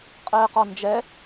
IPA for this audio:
qʼ ɛː q ɒ n d͡ʒ ɛ

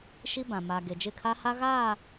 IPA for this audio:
ʃ i˦ b ã˨ m a˨ ɡ e˨ d͡ʒ ɪ˦˨ kʰ a˦ h a˦ ɣ aː˦˨

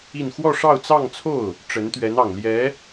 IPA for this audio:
i˥˧ n x w ɔ˥˧ ʂ ɑ˥˧ ʊ̯ t͡s ɑ˥˧ ŋ t͡sʰ o˥˩ ʊ̯ | ʈ͡ʂ ə˧˥ n t̪ ɥ ɛ˧˥ n ɑ˨˩ ŋ l j ɛ˧˥

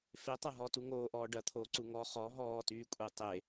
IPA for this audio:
f e tˤ ɐ ɦ ɔ t u ŋ oː ʔ ɔː ɖ ɐ t̪ʰ oː ǀ u ŋ ɔ χ ɔ ɦ ɔː t yː kʷʼ e tˤ e

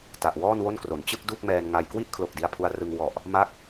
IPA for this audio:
t a˨˩ ʔ w ɔː˥˩ n w o˥˩ n k r o˩˦ n t͡ɕ ɯ˥˩ k̚ d u˥˩ k̚ m ɛː˧ n ŋ a˧ j k w i˦˥ ʔ kʰ l o˨˩ k̚ d i˧ a̯ pʰ u˧ a̯ r ɯ˧ ŋ w ɔ˨˩ ʔ | m a˦˥ k̚

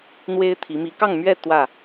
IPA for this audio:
n̪ w e˦ ɪ̯ t̪ʰ i˨˦ m i˨˦ k ɑ˥˨ ŋ m ɥ ɛ˥˨ t̪ w ä˥˨

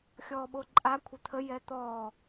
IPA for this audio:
xʲ ɔː ɓ o ǃʼ a kʷʰ ə t̪ʰ ə j ɛ t̪ ɔː

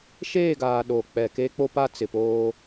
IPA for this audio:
ʃ eː˦˨ ɡ aː˨ ɗ o˨ k͡p ɛ˨ k e˦ k͡p o˦ p a˦ t͡s ɪ˨ p oː˦

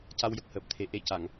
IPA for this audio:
c a˧ w j ə˨˩ k̚ h əː˨˩ p̚ t̪ʰ e˨˩ ʔ e˧ c a˨˩˨ ŋ

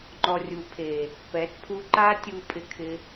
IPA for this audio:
ŋ͡ǃ ɔ˨ rʲ u˨ pʰ e˨ | p ɛ˨˦ t pʰ u˧ ǃ a˦ tʲ u˧ pʼ ɪ˧ kʰ ɪ˧

